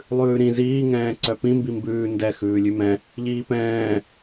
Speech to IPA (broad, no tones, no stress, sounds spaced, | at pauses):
lˠ ʉː ɾ ĩ z iː ŋ ɛ̃ː ǀ œ p ĩ m b i m b ʉː n d ɛ x ʉː lʲ ʉ m ɛ̃ | ʎ iː p ɛ̃ː